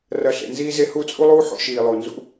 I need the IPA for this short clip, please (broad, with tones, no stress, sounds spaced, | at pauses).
r ɐ˧ ɬ ḛ˨ n z iː˧ z e˧ h u˦˨ t͡sʼ u˦ lˠ uː˦ ħ o̰˧ ʃ iː˨ lˠ o˨ n z ṵ˦